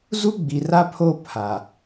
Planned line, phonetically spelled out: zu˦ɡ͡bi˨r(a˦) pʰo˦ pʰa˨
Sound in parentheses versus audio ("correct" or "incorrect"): correct